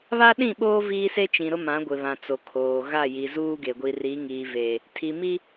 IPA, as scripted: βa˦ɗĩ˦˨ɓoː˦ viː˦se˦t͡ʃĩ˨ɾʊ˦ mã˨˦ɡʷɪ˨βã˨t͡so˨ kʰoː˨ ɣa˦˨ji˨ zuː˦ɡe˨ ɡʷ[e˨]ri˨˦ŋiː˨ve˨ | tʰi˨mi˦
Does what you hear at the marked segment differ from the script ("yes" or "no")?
yes